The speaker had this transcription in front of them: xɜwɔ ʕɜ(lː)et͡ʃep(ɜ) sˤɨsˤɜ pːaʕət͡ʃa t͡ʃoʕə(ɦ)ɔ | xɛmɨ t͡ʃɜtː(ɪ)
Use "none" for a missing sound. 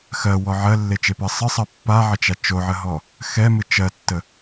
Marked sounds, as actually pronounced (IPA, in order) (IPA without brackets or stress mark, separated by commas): lː, ɜ, ɦ, ə